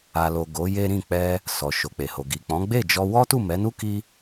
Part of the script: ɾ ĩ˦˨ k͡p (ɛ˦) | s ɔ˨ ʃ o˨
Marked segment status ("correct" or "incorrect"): incorrect